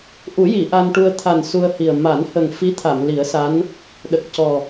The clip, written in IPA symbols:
ʔ u˨˩˦ j i˨˩˨ ʔ a˧ n ʈ u˧ ə̯ t̪ʰ a˨˩ n s u˧ ə̯ h i˨˩ ə̯ m a˨˩˦ n h ə˨˩ ŋ f i˧˥ t̪ʰ a˨˩˨ m l i˨˩˦ ə̯ s a˧˥ n | ɗ ə˨˩ k̚ c ɔ˨˩

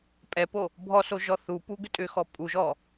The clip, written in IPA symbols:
pʼ ɛ p o | bʱ ɔ s o ʒ ɔ θ u p u ɡ ʏ tʼ ʏ x ɔ pʼ u ʒ ɔ

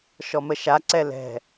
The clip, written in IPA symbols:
ʃ ɔ m ə ʃ a ǀ ɛ l ɛ̤

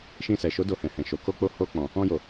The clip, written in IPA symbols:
ʃ ĩ˧ s ɛ˨ ʃ o˨˦ d o˧ h ɛ̃˨ h ɛ̃˨ ʃ o˨ k o˧ k͡p o˧ h o˧ k͡p ɔ̃˨ | ɔ̃˧ j o˨

